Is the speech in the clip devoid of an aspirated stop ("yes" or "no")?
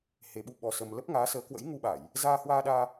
yes